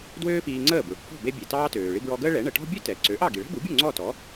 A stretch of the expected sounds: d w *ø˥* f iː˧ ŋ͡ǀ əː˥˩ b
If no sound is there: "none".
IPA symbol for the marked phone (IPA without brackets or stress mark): øː˥